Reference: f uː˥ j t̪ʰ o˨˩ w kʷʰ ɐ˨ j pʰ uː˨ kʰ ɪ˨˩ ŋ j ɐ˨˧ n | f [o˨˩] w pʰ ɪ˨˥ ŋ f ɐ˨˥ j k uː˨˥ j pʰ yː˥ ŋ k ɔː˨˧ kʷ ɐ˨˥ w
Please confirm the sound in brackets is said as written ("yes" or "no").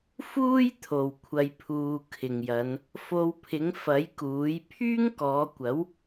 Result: no